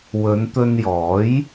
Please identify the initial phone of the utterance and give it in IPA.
w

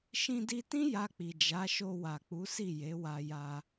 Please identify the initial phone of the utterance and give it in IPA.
ʃ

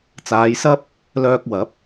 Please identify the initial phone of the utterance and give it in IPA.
t͡s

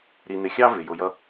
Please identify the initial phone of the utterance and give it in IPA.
ɾ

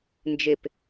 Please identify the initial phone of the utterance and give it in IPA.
n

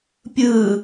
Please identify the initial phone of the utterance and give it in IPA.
pʲ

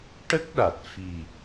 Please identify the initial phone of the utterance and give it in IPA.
ʈ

